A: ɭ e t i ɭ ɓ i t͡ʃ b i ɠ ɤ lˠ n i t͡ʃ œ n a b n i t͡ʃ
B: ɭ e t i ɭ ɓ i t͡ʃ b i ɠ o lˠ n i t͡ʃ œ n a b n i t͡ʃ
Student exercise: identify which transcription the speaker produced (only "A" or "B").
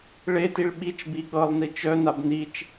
A